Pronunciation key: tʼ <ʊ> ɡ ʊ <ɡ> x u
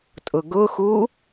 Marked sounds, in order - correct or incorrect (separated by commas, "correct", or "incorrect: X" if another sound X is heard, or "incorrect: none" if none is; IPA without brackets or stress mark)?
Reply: correct, incorrect: none